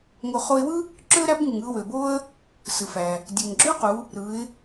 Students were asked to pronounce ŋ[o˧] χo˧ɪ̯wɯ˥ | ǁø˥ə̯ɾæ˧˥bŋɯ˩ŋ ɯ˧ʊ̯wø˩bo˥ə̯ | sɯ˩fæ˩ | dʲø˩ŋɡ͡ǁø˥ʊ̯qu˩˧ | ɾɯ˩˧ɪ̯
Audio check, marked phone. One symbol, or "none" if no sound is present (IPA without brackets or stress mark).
o˧